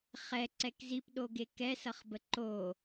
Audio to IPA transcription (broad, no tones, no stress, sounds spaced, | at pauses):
χ ɛ ǀ ɛ k z i p ɗ o ɡ e k ɛ s ʌ χ b ə ǃ o